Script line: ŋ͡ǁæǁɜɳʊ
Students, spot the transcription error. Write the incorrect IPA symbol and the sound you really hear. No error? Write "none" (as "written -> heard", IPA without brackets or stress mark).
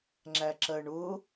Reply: none